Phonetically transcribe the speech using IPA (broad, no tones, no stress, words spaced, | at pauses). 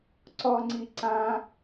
ǀɔŋ͡ǀi ǀã